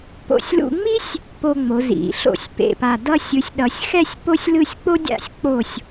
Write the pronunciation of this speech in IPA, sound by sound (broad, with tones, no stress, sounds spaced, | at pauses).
p o̰˧˩ sʲ l ṵ˧ ŋ͡m i˥ sʲ | p o˧ ŋ͡m o˩˧ z ḭ˩˧ ɬ o̰˧˩ sʲ p ḛ˧˩ p a˧˩ d ʌ˥˧ sʲ ɯ˩˧ sʲ ɗ ʌ˩˧ sʲ x ɛ˥˧ sʲ p o˥ sʲ l ɯ˥˧ sʲ k͡p o˥ dʲ a̰˥˧ sʲ k͡p o˧˩ sʲ